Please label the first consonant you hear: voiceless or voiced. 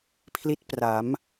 voiceless